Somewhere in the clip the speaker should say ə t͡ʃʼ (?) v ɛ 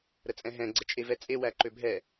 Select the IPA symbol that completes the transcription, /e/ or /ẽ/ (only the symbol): e